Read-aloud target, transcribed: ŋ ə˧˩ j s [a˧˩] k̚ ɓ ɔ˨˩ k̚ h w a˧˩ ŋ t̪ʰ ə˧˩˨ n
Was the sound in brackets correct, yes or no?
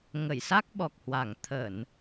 no